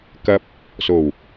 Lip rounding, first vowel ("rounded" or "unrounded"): unrounded